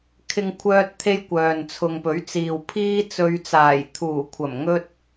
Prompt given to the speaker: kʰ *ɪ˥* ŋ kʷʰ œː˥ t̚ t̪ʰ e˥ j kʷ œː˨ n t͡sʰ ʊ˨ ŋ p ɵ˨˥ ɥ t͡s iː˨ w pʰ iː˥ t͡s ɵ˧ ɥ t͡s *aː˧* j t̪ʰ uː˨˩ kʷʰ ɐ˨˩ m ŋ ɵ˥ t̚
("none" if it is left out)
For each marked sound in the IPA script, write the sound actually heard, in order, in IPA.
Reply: ɪ˥, aː˨˩

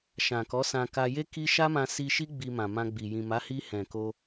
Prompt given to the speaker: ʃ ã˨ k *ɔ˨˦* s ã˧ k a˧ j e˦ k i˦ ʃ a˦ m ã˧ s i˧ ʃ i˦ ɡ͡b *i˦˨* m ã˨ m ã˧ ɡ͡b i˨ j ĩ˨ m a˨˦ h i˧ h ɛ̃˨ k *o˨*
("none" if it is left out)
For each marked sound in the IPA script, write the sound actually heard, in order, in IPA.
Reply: ɔ˨˦, i˧, o˧

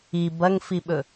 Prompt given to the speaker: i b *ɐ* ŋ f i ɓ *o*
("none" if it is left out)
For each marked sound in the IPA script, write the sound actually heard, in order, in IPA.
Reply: ɐ, ɵ

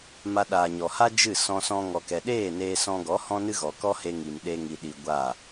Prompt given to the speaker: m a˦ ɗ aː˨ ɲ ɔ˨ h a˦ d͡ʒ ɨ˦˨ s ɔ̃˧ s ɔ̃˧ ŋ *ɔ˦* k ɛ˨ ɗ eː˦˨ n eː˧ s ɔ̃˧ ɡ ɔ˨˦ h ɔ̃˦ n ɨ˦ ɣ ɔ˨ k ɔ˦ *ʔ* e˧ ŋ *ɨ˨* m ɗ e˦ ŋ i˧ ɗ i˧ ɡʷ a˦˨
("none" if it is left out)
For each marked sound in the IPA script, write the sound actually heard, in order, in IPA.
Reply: ɔ˨, h, i˨

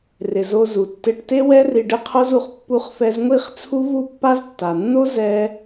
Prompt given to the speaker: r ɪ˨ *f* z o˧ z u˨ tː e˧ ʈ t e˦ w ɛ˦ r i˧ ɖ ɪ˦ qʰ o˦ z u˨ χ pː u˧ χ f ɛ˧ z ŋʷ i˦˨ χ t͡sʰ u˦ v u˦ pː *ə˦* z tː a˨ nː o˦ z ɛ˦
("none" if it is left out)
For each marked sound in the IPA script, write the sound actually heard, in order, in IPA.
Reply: none, a˦

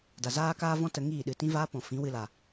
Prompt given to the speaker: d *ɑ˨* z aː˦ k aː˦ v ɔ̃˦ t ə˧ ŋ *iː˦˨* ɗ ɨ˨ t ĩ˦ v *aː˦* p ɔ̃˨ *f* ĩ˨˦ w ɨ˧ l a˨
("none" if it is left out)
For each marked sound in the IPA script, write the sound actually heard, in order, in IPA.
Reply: a˨, iː˦˨, aː˦, f

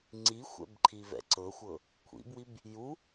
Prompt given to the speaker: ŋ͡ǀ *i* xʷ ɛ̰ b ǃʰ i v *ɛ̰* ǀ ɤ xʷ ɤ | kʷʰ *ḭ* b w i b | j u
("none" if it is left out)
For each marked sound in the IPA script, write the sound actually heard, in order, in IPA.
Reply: i, ɛ̰, ḭ

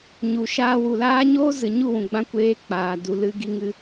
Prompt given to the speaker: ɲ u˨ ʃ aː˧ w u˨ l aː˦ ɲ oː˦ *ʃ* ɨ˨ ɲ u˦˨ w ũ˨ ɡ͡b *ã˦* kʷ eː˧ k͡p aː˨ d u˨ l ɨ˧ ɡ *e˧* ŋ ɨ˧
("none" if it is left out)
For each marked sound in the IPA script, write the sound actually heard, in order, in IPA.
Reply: z, ã˧, i˧

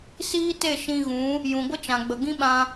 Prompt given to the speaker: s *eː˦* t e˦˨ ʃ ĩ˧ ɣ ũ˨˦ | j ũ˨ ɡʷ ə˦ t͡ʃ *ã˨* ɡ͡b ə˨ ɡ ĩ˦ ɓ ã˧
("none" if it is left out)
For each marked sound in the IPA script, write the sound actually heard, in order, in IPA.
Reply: iː˦, ã˨

